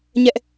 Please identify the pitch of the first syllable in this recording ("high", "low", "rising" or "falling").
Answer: high